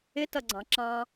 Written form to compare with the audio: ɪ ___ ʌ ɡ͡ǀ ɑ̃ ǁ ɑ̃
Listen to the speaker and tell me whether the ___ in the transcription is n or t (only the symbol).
t